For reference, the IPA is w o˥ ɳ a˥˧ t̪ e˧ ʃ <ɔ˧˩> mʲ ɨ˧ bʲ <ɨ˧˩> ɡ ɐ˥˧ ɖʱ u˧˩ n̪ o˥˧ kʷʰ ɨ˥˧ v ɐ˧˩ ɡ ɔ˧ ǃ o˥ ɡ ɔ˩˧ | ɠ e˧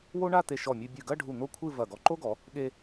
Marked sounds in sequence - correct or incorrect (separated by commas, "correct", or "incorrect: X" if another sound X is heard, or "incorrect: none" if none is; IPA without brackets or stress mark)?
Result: correct, correct